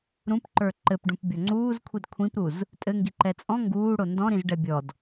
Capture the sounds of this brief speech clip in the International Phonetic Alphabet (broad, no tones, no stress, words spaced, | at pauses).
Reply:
ɾũpǃə˞ ǃɘpɖũp bʲɔŋ͡ǀuːzkʷʰid kʷʰĩpɾuz | tʼɘŋɡi ǃɛt͡sʼɔ̃ ŋɡuːɽo ndɔ̃ɾĩz ɖɛbʲɔd